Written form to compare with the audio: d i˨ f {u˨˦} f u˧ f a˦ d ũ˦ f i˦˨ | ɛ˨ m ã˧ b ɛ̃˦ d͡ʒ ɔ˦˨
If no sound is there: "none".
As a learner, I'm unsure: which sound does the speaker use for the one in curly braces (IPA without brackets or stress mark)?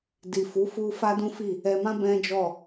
u˨˦